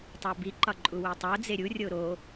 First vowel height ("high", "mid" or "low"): low